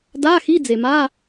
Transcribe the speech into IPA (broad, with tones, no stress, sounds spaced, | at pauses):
d a˧˥˧ x i˧˥˧ d͡z e˩ m a˧˥˧